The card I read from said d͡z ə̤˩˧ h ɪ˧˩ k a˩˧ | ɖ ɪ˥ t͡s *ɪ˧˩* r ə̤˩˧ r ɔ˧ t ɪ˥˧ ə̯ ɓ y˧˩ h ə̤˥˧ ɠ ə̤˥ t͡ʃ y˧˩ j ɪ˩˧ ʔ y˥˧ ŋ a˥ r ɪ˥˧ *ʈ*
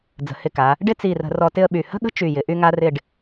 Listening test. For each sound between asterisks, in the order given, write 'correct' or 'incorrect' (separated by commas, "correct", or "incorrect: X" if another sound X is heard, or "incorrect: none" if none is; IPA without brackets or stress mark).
incorrect: i˧˩, incorrect: ɖ